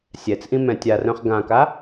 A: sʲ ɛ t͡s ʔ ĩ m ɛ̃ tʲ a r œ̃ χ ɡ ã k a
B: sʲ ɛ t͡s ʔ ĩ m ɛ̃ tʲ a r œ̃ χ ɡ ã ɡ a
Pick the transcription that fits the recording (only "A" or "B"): A